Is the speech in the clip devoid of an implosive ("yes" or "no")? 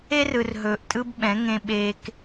no